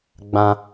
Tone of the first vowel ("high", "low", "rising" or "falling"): high